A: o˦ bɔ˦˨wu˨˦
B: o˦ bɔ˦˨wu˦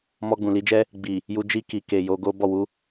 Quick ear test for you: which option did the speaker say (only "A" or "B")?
A